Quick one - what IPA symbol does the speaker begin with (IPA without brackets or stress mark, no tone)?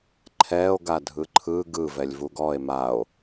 ǃʰ